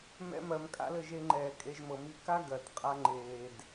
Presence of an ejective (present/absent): present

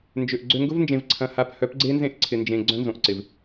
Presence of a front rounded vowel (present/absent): present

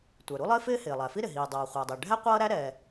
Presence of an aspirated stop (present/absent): absent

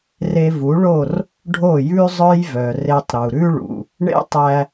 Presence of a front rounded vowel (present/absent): present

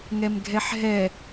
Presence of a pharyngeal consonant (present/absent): present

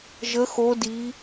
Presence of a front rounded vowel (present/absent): absent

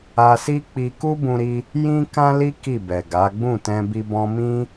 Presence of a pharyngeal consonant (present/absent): absent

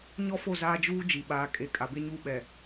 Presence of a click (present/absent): absent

